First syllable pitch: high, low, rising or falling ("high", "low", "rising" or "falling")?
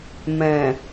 low